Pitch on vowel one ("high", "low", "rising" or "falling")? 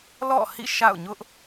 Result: falling